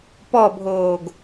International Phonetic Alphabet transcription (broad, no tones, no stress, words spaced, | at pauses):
pɔbʱoːɡ